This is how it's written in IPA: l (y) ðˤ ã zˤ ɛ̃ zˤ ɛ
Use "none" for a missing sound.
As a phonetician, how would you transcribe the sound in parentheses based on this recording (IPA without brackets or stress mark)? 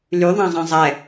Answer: y